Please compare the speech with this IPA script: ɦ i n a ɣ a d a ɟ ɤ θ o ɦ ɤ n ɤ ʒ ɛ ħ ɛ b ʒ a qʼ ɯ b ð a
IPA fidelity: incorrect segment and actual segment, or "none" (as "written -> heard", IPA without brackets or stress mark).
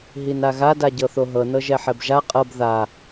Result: ɯ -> ɤ